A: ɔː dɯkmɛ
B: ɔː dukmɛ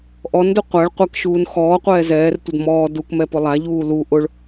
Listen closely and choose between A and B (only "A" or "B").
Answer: B